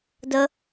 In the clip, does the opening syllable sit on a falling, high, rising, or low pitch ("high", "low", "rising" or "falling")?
high